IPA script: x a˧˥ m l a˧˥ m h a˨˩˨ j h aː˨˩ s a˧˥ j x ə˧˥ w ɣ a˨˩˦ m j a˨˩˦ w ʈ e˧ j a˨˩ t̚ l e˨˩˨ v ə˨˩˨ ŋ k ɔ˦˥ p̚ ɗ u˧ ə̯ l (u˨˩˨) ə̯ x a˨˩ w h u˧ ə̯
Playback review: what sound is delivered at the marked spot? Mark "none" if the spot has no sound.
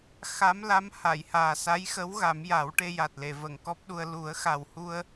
u˨˩˦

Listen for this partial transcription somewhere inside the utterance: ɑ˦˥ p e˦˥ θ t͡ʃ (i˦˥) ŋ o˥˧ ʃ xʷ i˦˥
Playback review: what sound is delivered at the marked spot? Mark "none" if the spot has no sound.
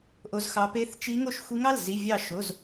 i˦˥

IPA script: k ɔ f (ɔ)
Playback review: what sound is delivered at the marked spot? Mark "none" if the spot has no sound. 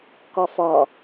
ɔ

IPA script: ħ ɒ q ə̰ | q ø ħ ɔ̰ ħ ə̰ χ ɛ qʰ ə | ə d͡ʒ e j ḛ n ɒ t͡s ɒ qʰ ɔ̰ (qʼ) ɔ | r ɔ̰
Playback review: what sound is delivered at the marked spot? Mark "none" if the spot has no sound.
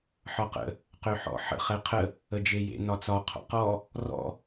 q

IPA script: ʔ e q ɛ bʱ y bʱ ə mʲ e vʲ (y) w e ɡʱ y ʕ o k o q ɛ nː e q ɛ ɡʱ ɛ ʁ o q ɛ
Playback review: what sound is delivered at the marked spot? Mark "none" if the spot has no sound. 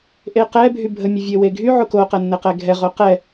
e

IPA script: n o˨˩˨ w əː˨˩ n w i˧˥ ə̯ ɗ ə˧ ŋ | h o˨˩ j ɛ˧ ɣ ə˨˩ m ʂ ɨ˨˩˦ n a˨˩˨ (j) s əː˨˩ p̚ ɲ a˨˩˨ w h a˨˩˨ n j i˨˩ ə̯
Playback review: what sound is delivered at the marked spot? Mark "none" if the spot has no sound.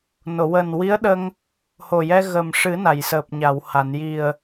j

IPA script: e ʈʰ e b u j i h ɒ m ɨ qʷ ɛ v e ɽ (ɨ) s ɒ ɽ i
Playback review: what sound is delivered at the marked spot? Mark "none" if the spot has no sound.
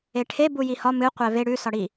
ʉ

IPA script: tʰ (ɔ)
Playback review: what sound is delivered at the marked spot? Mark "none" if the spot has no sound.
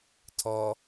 ɔ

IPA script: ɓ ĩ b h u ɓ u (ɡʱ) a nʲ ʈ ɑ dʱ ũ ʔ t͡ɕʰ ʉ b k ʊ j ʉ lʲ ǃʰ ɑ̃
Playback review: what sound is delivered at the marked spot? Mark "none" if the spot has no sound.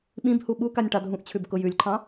k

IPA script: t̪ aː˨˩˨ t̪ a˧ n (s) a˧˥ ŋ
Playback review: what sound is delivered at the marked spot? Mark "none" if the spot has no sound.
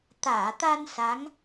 s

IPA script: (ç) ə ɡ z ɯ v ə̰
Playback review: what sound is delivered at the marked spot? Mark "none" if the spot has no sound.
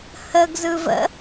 h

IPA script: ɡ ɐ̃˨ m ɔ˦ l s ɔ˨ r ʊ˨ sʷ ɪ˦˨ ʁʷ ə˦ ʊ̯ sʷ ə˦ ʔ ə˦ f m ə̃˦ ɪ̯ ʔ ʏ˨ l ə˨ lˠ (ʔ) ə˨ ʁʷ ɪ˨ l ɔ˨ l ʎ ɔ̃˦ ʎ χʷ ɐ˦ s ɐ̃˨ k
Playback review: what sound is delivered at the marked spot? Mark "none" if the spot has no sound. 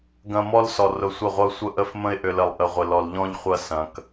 ʔ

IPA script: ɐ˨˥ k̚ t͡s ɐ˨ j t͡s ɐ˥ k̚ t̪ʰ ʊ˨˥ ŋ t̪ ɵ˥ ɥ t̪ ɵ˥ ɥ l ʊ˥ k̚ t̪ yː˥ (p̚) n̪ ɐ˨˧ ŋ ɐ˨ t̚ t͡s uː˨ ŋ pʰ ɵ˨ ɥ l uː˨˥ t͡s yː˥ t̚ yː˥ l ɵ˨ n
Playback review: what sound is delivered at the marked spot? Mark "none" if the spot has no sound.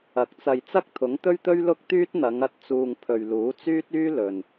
t̚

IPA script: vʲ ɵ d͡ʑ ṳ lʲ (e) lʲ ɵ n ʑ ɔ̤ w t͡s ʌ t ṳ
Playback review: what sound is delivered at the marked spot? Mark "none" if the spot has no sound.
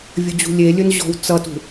e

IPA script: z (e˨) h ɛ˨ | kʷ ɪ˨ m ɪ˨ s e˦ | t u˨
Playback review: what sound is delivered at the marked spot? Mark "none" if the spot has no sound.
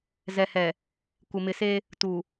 ɛ˨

